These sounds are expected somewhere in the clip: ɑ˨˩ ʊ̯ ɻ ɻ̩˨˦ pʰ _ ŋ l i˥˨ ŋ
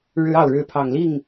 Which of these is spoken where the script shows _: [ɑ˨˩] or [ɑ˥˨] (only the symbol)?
ɑ˨˩